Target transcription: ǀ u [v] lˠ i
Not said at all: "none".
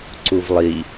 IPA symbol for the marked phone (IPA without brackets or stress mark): v